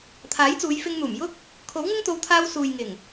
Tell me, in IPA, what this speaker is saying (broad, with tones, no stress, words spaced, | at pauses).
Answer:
t̪ʰaː˨˥jt͡suː˨˧jfɪ˧ŋn̪uː˨˩m jʊ˥k̚ | kʰo˨˥wŋɪ˥ŋt̪o˨˧wt̪ʰaː˧w suː˨jŋɪ˨˩ŋ